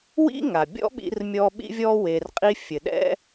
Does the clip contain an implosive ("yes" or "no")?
yes